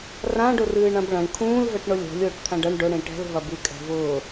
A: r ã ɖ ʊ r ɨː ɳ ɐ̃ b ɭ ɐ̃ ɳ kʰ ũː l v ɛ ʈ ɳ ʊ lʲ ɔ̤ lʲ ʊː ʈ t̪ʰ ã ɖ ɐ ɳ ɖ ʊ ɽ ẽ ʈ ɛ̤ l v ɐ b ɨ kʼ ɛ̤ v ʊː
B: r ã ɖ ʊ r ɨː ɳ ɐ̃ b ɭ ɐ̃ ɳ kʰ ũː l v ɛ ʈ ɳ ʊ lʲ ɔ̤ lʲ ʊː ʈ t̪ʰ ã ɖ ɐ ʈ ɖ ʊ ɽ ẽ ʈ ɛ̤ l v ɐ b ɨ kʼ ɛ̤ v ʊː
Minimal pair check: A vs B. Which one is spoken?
A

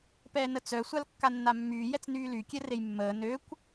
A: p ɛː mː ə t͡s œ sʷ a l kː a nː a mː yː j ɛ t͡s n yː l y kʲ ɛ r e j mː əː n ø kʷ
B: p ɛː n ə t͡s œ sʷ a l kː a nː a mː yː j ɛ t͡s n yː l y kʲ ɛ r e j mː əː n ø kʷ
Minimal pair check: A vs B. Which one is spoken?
B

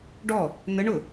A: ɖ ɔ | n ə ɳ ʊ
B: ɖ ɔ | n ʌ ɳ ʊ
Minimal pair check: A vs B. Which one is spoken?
A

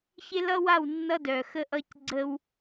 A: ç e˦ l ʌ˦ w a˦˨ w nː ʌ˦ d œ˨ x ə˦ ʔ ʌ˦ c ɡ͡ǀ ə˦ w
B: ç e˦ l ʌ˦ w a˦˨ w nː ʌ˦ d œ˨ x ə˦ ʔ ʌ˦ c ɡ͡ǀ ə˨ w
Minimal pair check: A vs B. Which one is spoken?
A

